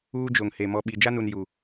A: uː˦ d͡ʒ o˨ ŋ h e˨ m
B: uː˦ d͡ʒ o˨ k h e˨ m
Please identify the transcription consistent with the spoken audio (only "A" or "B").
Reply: A